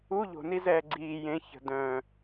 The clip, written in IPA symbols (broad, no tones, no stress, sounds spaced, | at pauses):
u ʎ o̤ n i z ɛː ɡ͡ǀ iː j ẽ ç ə̤ d œ̃